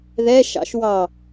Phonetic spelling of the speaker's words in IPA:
ð ɛ ʃ ɑ̰ ʃ w ɑ

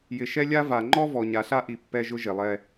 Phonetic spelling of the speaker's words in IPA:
j ɪ˨ ʃ ɛ˦ lʲ a˦ v a˨ ŋ͡ǃ ɔ˦ v ɔ˨ ɲ a˨ ɬ a˦ ʔ i˨ pː ɛ˦ ʒ ʊ˦ ʒ e˨ lˠ ɛ˦

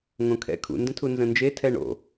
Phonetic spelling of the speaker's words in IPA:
ŋ õ kʰ ɛ̰ kʰ ṵ n d ə̃ tʰ u n z ə̃ n d͡ʒ e tʰ ɛ ɳ o̰

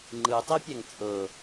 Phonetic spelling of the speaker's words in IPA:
ŋ͡ǃ ɯ tˤ i pʲ ɛ ŋ t͡sʼ ɤ

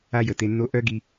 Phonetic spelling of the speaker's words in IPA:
a˦ j ə˨ t e˧ nː o˦ ʔ œ˦ ɡ i˧

